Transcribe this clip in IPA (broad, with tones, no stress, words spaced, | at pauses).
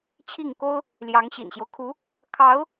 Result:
t͡ɕʰi˥˩ŋko˥ʊ̯ | ljɑ˧˥ŋɕḭ˨˩nɕjo˦ʊ̯kʰu˧˥ | kʰɑ˧˥ʊ̯